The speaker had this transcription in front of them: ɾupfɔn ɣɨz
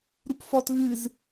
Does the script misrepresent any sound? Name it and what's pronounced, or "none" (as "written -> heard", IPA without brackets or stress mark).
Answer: n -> t